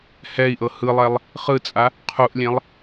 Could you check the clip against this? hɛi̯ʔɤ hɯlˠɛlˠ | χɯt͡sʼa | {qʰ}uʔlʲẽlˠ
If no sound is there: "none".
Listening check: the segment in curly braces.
qʰ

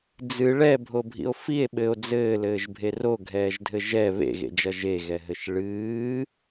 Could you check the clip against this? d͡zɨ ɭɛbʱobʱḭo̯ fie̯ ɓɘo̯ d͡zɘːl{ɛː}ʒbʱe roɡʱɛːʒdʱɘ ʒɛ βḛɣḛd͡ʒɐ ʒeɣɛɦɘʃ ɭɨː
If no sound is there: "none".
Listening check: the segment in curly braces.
ɘː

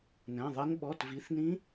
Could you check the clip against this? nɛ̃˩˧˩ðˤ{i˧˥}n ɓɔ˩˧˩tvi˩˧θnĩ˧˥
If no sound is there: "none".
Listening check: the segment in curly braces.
i˧˥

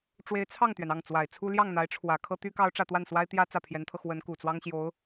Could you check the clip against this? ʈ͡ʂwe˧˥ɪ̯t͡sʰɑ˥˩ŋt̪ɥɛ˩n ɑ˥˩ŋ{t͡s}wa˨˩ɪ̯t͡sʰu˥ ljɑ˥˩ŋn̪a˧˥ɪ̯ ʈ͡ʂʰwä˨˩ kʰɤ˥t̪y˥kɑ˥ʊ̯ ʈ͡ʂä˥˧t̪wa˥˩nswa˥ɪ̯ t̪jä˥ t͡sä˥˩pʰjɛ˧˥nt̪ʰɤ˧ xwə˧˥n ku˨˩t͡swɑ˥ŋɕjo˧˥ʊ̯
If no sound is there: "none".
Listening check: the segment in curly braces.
t͡s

